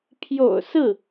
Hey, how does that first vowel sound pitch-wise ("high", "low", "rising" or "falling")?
low